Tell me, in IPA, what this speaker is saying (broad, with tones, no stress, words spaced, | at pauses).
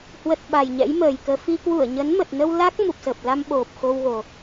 hwə˨˩t̚ ɓa˨˩jɲɛ̰˧˥jməː˨˩jkəː˧ fi˧ kwu˧˩ə̯ɲə˨˦nmə˨˩t̚nə˧w la˦˥k̚ mu˨˩p̚sə˨˩p̚la˧m ɓo˨˩p̚ xo˧wɣo˨˩